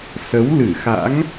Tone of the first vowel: rising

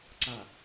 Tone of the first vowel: low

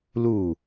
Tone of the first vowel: falling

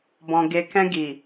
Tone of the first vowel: low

